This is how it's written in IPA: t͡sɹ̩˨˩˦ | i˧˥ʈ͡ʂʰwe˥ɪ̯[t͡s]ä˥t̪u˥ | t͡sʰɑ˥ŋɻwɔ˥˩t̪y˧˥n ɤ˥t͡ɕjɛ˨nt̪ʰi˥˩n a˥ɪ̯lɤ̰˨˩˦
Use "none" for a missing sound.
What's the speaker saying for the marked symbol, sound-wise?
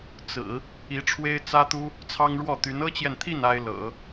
t͡s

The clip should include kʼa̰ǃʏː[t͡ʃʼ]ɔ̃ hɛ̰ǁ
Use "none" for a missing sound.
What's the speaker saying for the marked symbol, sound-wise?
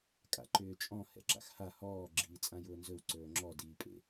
t͡ʃʼ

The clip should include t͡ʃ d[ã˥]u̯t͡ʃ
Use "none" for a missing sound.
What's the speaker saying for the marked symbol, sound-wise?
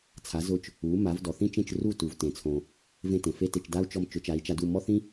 a˥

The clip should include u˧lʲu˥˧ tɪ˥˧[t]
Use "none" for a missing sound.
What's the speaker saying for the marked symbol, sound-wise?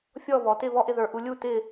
none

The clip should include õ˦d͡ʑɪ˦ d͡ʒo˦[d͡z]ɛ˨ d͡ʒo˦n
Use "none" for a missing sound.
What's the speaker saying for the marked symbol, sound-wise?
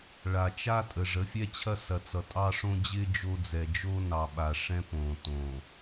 d͡z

